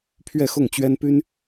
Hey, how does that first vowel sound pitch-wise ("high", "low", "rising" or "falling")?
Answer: falling